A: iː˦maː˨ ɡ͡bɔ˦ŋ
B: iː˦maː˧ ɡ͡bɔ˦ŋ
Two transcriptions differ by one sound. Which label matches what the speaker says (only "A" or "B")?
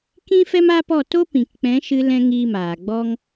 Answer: A